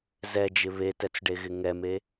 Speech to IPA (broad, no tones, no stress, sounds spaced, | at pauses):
z ɛ d͡ʒ ɪ β e t ɛ t͡s ɖ e ɣ ɪ ŋ ɛ m e